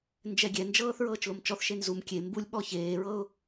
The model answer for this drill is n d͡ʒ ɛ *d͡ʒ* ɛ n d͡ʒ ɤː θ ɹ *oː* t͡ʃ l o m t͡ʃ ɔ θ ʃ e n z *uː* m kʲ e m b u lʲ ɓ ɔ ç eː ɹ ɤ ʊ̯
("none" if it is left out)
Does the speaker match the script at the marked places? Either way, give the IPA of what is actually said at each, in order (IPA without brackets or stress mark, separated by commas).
ɡʲ, ɤː, u